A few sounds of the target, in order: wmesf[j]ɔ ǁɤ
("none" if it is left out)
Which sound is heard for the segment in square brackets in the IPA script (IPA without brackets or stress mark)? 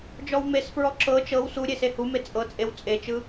ɹ